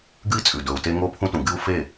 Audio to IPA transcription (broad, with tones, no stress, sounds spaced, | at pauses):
ɡ ɨ˦ i̯ t͡sʼ ʉ˨ d ɵ˨ u̯ t e˦ ŋ o˦ pʰ ũ˦ t ũ˨ ɡ ɨ˦ u̯ f e˦˨